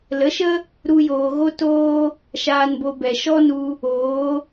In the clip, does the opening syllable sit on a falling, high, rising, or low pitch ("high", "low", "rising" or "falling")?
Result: rising